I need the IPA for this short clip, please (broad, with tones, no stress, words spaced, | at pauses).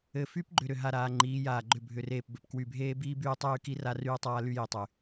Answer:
ɘ˨ fy˦pɡ͡ǃʏ˨ ɾʏ˨ɦa˨ɾaː˨ ŋ͡ǃiː˨˦jaː˨ɡ͡ǃʏ˦˨ bʱʏ˨reː˨p bɘ˨pkwy˨bʱeː˦biː˦ byː˦tˤyː˦ki˦ra˦ ryː˦tˤaː˦ ly˦ji˨tˤy˨